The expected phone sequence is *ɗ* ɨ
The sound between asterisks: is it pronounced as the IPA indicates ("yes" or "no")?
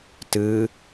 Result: no